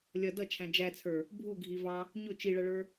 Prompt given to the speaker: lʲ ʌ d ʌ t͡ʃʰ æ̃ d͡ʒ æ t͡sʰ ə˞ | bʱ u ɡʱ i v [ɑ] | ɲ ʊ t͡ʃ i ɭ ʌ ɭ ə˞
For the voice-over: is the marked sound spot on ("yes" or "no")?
yes